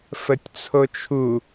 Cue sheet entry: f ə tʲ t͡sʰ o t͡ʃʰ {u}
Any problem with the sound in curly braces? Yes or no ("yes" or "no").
no